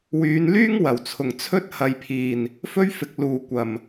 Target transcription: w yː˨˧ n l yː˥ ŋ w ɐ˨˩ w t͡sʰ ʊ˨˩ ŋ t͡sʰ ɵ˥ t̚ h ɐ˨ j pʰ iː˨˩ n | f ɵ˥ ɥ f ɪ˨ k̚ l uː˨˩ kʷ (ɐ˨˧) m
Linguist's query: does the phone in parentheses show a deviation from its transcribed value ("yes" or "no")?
yes